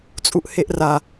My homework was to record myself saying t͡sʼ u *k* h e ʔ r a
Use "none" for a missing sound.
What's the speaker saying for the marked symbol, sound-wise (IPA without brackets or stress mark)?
ʔ